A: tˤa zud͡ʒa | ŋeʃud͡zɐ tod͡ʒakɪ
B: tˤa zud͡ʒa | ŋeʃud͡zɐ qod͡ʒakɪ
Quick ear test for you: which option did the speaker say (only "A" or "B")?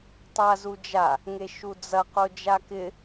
B